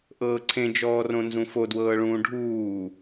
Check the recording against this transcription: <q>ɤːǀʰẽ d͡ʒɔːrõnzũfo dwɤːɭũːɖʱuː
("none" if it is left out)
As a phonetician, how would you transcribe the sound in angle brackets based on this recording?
ʔ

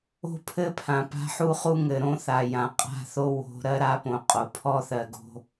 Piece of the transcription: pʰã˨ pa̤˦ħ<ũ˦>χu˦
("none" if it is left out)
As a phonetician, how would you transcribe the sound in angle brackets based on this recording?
u˦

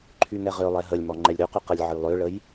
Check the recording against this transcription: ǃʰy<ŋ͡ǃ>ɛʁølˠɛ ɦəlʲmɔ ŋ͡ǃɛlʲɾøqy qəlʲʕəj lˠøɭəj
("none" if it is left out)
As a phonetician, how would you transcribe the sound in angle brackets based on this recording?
ŋ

